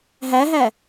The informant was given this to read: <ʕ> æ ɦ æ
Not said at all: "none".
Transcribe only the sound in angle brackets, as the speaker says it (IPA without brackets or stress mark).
ɦ